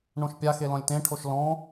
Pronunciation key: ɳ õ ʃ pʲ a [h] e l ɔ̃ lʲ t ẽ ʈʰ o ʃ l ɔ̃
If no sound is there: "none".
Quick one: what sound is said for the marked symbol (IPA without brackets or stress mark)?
x